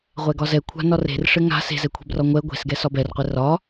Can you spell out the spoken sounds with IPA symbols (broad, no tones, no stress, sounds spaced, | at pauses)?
ʁʷ ɛ ɡ ɒ z ɛ kʷʰ a̤ n ɒ r e̤ r ʂ ɘ ŋ a̤ s e̤ z ɛ kʷʰ e̤ b r ɒ ŋʷ ɛ ɡʷ e̤ s ɡ ɛ s ɒ b ɛ r qʷ ɛ r ɒ